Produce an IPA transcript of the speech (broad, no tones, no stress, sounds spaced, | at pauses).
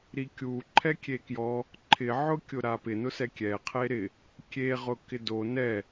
ɾ i kʲ u ǃʰ ɛ kʲ e k j ɔ | ǃʰ ɪ ʕ ʊ kʲ ʊ ɾ a p ɪ n ʊ s ɛ kʲ ɛ qʰ e ɾ ɪ | kʲ e ʁ ʊ k ɪ d o n ɛ